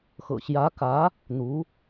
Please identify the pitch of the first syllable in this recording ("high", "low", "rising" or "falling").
low